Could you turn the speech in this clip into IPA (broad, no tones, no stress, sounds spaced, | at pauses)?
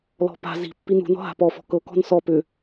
l ɔ̤ p a̤ z i̤ pː i n ṳ n ɔ̤ ɦ a̤ p ɔ f ɔ̤ k ɤ k ɔ̤ n s ɔ p ʏ